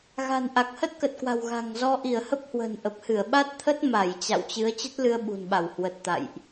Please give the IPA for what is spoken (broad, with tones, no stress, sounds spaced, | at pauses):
ɣ a̤˨˩ n ʔ a˨˩ k̚ h ə˦˥ t̚ k ə˨˩ t̚ k w a̤˨˩ w ɣ a̤˨˩ ŋ z ɔ˧ ʔ i˧˩ ə̯ h ə˦˥ p̚ h w ə̤˨˩ n ʔ ə˨˩ p̚ h ɨ˧˩ ə̯ ɓ a˦˥ t̚ t̪ʰ ə˦˥ t̚ m a˧˩ j t͡ɕ a̰˧˨ w t͡ɕ ɨ˨˦ ə̯ t͡ɕ ə˦˥ t̚ l ɨ˧ ə̯ ɓ ṳ˨˩ n ɓ a˧˩ w h w ə˨˩ t̚ t̪ a̰˧˨ j ʔ